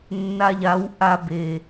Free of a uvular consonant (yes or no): yes